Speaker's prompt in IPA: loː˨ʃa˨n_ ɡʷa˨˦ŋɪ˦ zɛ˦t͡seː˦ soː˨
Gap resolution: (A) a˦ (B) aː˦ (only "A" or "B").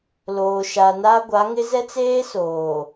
A